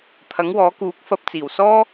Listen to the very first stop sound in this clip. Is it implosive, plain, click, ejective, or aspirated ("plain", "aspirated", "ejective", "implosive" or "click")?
aspirated